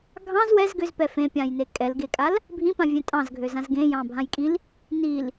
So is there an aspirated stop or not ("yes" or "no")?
no